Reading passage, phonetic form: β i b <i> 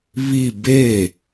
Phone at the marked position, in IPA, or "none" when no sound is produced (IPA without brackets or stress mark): e